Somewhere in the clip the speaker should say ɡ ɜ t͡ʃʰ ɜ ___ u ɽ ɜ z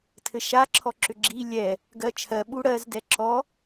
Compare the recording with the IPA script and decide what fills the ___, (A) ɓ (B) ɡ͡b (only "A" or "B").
A